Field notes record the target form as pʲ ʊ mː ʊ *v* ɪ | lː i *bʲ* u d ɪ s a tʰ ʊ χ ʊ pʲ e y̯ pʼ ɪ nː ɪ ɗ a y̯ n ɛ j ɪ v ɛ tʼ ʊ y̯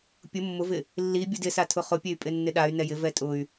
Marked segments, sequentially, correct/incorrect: correct, correct

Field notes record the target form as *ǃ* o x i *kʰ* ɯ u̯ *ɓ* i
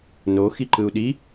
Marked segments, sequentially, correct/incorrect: incorrect: n, incorrect: ǃ, incorrect: ɗ

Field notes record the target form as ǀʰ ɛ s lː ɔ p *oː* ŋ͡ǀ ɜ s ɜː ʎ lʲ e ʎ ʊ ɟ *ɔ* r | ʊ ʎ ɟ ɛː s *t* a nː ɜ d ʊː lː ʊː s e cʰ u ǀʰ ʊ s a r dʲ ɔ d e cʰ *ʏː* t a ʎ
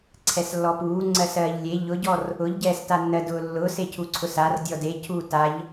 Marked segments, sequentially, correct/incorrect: incorrect: uː, correct, correct, incorrect: uː

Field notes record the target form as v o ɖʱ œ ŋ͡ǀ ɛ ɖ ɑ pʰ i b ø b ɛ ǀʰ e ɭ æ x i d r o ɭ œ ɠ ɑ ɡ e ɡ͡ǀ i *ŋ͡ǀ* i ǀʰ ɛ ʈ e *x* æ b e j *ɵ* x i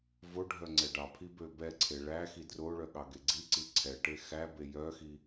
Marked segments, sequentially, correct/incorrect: incorrect: ǀ, correct, incorrect: œ

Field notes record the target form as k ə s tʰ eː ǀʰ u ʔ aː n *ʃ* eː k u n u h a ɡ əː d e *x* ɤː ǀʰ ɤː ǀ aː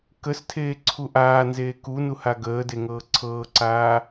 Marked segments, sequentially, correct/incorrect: incorrect: z, incorrect: ŋ

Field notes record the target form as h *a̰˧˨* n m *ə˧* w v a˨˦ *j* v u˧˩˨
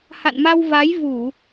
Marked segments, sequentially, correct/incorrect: correct, incorrect: a˧, correct

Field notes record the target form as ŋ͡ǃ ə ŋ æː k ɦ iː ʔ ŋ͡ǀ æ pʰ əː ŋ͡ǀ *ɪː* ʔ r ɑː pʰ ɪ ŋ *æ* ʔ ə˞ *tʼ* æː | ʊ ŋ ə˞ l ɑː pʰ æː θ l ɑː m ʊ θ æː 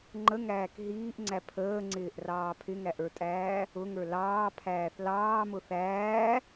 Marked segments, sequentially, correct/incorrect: correct, correct, correct

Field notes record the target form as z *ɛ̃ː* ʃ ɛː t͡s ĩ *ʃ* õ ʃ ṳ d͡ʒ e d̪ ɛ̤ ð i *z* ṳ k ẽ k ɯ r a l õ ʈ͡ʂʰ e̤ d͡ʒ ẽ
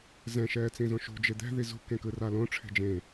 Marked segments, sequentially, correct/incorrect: incorrect: ɛ̃, incorrect: z, correct

